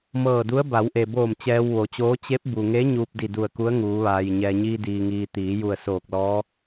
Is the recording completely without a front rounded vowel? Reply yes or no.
yes